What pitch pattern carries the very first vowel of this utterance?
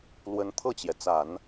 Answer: rising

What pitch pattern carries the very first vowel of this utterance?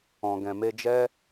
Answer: low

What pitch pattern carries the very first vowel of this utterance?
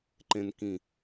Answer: low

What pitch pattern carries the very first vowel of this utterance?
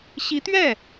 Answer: rising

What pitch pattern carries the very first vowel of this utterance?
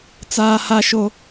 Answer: high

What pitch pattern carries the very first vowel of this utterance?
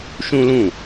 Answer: high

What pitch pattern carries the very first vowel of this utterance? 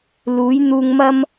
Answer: rising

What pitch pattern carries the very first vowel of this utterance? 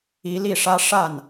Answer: rising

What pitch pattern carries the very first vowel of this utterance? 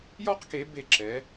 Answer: high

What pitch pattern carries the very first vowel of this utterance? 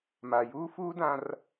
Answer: low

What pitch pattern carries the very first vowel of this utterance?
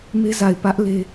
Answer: high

